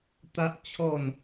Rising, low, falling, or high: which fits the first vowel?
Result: high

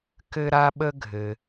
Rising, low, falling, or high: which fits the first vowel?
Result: high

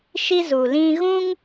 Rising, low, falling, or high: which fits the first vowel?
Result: high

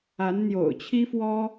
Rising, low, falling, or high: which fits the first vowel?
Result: rising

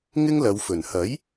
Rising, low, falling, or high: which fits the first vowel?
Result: high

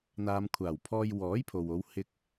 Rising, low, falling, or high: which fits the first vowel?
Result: low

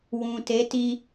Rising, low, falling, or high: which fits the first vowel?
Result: low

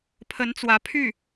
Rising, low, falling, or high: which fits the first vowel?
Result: rising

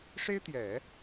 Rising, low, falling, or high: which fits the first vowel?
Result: high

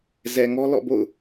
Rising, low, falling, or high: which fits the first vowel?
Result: low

